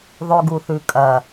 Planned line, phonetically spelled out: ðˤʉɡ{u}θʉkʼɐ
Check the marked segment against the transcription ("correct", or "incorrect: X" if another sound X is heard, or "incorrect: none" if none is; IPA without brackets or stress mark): correct